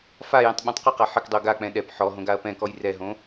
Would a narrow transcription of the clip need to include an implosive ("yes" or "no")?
yes